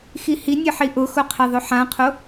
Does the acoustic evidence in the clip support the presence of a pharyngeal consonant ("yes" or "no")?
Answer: yes